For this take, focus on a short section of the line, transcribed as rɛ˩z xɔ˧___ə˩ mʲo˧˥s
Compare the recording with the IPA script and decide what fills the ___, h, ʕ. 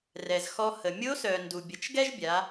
h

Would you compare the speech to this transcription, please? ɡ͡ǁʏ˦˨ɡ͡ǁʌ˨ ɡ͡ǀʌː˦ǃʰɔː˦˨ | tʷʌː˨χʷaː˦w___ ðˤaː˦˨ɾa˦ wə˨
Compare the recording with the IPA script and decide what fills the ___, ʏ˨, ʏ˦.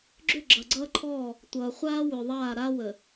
ʏ˨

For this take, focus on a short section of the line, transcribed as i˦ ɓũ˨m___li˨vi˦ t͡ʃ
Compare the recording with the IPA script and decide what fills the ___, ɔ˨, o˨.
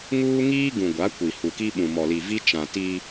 ɔ˨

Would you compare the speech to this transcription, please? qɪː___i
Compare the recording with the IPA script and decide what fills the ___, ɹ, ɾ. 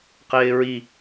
ɹ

